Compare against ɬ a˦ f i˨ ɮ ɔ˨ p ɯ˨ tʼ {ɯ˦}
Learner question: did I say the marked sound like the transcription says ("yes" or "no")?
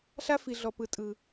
no